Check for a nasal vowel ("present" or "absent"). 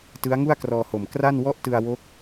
absent